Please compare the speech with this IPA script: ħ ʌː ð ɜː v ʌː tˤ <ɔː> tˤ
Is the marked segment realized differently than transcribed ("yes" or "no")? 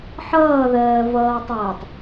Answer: yes